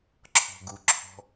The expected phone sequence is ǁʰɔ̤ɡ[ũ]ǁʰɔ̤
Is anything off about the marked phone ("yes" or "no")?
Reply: yes